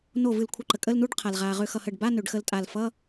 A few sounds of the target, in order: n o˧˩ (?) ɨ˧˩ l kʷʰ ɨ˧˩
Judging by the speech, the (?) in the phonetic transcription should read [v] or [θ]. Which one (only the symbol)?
v